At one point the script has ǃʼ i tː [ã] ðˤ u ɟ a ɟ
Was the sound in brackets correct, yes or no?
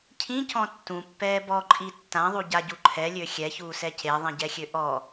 yes